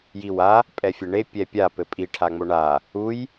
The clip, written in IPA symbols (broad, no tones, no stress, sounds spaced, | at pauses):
j i w a | pʼ ɛ fʲ ɘ ɳ e pʲ ɛ pʲ a p ɘ pʼ i ʈʰ a ŋ͡m o ɳ a | u j